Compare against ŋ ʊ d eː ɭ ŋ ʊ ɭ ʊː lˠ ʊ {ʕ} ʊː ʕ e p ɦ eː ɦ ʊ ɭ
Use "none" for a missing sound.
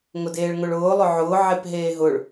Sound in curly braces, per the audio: ʕ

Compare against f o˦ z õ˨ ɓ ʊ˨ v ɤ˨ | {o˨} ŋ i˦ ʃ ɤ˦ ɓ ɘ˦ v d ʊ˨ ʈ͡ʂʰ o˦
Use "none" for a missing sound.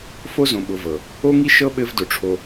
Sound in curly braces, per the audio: o˦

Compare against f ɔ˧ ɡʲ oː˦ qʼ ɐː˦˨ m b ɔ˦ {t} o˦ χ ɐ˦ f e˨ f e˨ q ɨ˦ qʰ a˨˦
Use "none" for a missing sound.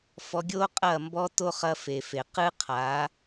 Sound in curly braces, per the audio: t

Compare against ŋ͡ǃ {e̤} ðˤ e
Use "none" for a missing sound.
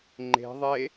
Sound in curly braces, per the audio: e̤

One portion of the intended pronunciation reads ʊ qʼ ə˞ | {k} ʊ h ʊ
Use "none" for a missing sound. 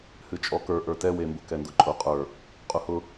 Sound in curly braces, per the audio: qʼ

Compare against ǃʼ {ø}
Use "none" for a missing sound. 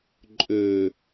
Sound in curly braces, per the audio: ø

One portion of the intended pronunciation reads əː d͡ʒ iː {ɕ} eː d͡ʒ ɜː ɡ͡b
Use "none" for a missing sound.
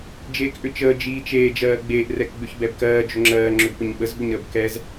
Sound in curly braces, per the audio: t͡ʃ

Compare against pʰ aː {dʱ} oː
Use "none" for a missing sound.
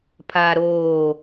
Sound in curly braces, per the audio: ɾ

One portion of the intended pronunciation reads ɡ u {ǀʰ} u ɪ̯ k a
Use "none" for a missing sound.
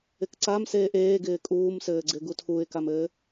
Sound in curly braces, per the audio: tʰ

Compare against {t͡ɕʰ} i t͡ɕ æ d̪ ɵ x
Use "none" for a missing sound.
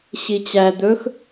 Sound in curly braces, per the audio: ɕ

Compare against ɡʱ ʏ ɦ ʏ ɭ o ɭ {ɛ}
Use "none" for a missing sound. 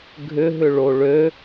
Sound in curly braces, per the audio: ø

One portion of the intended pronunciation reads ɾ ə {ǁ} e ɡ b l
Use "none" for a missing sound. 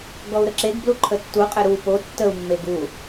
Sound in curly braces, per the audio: ǁ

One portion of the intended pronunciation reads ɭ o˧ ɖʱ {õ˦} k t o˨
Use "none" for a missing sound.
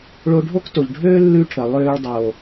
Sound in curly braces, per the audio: o˦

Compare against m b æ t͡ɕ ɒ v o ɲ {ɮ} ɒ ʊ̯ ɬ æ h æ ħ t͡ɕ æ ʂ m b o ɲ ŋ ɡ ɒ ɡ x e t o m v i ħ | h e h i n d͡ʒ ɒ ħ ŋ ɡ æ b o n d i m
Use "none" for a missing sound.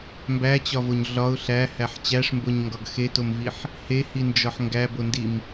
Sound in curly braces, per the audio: ɮ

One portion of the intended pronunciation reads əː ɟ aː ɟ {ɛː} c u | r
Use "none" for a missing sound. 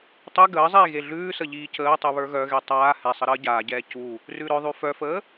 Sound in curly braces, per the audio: ɛː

